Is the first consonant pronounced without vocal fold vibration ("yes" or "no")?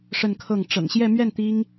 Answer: yes